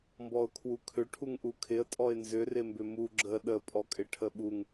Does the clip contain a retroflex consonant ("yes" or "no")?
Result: yes